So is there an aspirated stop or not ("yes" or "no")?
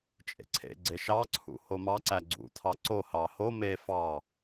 yes